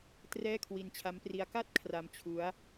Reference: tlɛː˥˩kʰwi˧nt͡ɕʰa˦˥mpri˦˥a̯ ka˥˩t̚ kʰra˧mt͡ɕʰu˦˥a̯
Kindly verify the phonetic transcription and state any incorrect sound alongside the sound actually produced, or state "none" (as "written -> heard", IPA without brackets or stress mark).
l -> r